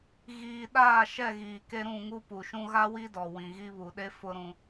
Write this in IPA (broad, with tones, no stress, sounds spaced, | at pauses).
ɣ iː˨ ɗ aː˦˨ ʃ ɛ˦˨ ɣ iː˨ k e˦ ɾ ũ˦˨ ŋ u˦ p u˨ ʃ ũ˦ ɣ a˦ w i˦ d ɔ˨ w ĩ˨ ɣ i˦ β u˨ ɗ e˦ f ʊ˦ ɾ ũ˦